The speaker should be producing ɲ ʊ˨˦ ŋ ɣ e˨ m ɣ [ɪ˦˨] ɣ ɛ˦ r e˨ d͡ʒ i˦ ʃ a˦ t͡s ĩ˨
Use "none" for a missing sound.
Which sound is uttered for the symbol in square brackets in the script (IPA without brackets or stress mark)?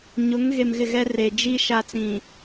ɪ˦˨